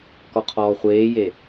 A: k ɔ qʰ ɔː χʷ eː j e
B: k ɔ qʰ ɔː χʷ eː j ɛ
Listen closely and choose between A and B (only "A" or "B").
A